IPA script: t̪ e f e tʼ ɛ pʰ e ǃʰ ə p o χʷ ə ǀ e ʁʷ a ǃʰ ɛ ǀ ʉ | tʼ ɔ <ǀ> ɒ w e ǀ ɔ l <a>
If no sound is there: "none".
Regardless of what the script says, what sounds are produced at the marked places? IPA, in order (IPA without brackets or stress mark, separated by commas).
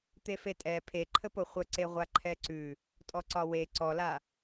ǀ, a